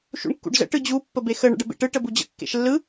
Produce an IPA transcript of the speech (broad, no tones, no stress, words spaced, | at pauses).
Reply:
ʃṵɳkːṵɖzə̰ ʈɯd͡ʑu pːəbexə ɳə̰ɖəbḛʈɯ ʈəbud͡ʑə̰ kːḛʃlːɯ